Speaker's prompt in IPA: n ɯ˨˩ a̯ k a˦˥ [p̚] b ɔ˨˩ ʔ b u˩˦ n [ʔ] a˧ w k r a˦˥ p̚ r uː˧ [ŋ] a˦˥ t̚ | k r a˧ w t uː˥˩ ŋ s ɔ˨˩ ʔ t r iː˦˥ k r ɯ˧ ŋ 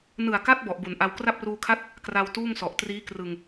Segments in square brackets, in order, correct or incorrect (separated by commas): incorrect, correct, incorrect